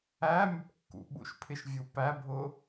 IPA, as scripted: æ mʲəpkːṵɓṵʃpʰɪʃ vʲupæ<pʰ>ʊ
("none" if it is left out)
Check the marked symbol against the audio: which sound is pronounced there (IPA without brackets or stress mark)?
bʱ